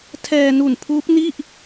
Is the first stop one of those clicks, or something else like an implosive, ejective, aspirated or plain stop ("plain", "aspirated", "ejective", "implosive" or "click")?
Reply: aspirated